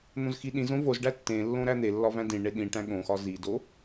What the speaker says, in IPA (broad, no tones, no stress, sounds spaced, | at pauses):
n̪ õ z x i ɗ ĩ z õ v o z ɖ æ tː ẽ lː õ ɾ æ n̪ e lː ɒ v æ̃ d ĩ ɳ e ɗ ĩ ʈ æ̃ ɠ õ x ɒ z i d o